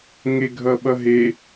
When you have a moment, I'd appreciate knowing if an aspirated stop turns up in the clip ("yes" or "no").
no